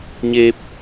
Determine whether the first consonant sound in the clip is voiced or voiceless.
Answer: voiced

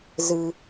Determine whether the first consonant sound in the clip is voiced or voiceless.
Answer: voiced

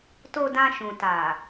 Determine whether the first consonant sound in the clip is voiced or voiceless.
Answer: voiceless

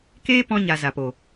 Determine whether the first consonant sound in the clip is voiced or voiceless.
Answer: voiceless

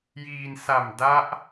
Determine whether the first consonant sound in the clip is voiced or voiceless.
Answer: voiced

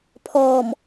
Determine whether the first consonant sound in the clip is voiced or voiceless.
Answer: voiceless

